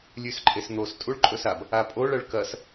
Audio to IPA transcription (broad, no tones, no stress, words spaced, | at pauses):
lʲʉsǃʼesn̪os tʼuɭǃʼɵsab | apʼoɭ ɐɭkɐs